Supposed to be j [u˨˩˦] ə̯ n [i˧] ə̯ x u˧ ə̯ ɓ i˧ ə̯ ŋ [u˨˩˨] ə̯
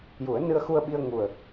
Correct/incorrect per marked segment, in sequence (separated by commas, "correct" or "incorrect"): correct, incorrect, incorrect